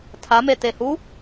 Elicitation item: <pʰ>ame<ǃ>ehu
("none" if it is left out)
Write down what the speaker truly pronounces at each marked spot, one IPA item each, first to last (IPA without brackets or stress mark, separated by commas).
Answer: tʰ, t